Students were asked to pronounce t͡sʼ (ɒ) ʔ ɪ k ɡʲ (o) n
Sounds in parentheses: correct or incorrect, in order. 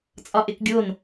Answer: correct, correct

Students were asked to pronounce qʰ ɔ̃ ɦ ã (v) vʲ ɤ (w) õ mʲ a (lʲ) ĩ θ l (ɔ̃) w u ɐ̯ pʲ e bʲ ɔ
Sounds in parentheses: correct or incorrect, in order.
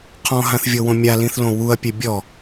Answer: incorrect: θ, correct, incorrect: l, incorrect: õ

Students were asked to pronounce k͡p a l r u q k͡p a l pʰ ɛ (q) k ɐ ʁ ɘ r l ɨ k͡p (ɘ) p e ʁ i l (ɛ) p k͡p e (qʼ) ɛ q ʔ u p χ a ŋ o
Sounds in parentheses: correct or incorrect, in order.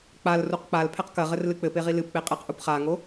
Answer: correct, correct, incorrect: ɨ, correct

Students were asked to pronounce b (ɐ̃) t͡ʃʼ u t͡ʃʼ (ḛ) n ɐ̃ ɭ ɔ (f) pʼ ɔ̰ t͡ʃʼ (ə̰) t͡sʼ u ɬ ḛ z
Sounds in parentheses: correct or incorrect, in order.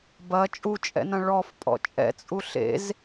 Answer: incorrect: ɐ, incorrect: ɛ̰, correct, incorrect: ɛ̰

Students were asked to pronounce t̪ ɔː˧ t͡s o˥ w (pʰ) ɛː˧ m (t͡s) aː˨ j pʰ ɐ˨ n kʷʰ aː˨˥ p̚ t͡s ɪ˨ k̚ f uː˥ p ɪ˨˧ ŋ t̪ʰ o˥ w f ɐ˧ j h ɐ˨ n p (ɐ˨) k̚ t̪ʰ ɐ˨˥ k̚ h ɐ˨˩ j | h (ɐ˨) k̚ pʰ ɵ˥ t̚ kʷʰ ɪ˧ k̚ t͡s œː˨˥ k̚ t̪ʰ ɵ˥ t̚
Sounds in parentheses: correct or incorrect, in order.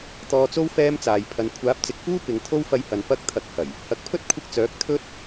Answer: incorrect: f, correct, incorrect: ɐ˧, incorrect: ɐ˨˥

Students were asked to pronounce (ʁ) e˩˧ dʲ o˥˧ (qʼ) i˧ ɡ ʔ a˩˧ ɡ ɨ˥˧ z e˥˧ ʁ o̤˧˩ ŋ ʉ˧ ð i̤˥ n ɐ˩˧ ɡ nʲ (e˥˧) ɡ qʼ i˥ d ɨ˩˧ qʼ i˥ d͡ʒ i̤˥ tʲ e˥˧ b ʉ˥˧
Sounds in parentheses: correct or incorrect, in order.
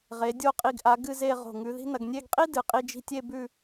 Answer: correct, correct, correct

